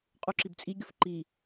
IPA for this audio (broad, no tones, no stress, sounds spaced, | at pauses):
qʼ u ǁ i b t͡sʼ i ɡʲ ʊ f ǃ i